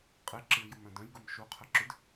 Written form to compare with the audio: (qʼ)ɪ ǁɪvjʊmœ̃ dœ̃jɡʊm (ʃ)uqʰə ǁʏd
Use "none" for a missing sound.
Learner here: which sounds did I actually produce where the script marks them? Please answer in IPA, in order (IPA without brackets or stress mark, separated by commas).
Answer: qʼ, ʃ